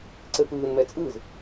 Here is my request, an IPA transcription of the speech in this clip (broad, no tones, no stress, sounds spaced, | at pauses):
ǀ ɘ f ɯː n m ɛ t͡sʼ ɯ z